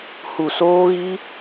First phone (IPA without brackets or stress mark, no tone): h